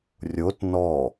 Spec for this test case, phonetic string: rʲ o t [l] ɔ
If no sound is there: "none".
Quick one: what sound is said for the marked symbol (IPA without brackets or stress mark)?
n